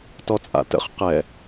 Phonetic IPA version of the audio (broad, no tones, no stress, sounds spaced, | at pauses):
t ɔ t͡sʼ a̰ t ə̰ χ q ɛ